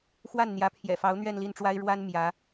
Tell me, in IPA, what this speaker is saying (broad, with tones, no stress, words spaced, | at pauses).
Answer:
xwa˥˩nn̪jä˧˥pʰjɛ̰˨˩ fɑ˧˥ʊ̯n̪ɥɛ˥˧nli˥˩nʈ͡ʂwa˥ɪ̯ ɻwa˥n mjä˧˥